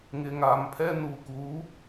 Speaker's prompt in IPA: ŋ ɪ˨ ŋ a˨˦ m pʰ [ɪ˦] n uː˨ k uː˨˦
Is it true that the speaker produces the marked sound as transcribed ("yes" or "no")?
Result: no